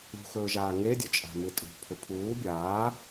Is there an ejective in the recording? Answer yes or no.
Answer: yes